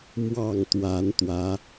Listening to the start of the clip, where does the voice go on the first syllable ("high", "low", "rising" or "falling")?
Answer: falling